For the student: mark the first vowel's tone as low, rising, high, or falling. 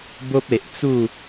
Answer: high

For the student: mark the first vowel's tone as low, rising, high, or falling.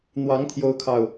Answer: rising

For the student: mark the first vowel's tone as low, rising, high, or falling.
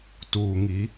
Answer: low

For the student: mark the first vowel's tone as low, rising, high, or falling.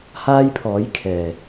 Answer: high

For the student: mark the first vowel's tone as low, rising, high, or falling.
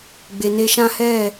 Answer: low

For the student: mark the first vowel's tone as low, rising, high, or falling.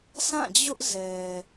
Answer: falling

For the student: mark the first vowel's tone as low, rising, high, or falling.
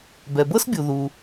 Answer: low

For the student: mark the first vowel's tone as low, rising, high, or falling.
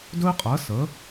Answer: high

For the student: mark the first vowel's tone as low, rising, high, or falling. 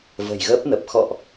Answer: low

